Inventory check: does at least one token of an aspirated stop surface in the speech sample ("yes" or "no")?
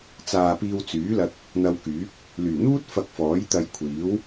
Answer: yes